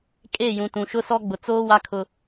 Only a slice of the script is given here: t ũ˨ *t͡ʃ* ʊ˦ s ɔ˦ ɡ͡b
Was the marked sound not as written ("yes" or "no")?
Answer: yes